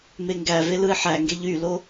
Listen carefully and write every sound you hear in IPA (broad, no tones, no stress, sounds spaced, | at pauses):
m e ŋ ɡ æ v e l ɯ ɪ̯ ħ æ ŋ ɡ e ʎ y l o